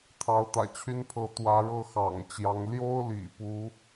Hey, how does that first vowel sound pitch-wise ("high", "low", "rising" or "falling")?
rising